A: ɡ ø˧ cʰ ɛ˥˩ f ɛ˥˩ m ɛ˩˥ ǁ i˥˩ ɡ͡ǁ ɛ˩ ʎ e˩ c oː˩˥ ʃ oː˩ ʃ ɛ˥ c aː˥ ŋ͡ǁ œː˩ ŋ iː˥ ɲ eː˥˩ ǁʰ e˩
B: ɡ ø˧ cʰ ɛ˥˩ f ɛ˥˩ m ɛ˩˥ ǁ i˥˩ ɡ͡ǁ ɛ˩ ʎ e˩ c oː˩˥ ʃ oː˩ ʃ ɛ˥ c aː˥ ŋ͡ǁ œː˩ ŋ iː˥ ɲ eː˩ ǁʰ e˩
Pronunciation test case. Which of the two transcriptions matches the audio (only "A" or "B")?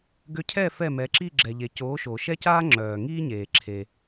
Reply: B